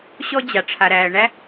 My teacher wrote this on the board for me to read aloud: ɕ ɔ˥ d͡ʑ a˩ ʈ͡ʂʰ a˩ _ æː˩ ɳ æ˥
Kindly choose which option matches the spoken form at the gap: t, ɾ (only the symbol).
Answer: ɾ